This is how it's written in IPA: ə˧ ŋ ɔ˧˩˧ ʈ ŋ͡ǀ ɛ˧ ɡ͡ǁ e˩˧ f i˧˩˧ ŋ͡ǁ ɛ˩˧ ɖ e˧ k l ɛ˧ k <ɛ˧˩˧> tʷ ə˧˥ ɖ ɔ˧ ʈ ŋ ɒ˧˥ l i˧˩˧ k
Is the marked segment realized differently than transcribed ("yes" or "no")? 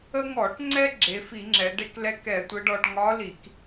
no